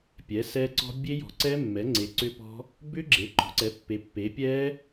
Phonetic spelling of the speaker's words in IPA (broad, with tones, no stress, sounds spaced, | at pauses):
pʲ ɛ˩˥ s ɛ˦˥ ǀ ɔ̤˦˥ bʲ e˦˥ j ɔ̤˩˥ ǀ ɛ˦˥ mː ɛ˩˥ ŋ͡ǀ e˩˥ ǀ ʏ˦˥ p ɔ̤˦˥ | b ʏ˦˥ ɡ͡ǁ e˩˥ ǃ ɔ̤˩˥ ǀ ɛ˩˥ pː e˩˥ pː e˩˥ pʲ ɛ˦˥